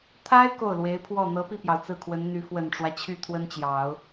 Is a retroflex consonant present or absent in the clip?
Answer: present